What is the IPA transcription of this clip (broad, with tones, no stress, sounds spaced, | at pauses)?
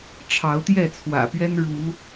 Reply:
ʈ͡ʂʰ ɑ˨˦ ʊ̯ t̪ j ɛ˥˨ t͡sʰ w ä̰˨˩ p ɥ ɛ˦ n ɻ u˨˦